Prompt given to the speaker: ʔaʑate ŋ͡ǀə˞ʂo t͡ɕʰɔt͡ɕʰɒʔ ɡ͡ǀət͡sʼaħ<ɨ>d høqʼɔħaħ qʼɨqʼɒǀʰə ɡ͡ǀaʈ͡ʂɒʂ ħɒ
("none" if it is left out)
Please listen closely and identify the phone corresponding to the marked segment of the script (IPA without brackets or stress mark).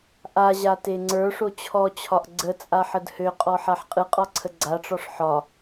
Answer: ə